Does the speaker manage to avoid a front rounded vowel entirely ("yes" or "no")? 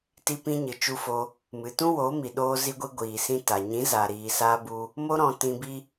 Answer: yes